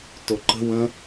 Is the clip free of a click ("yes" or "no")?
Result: no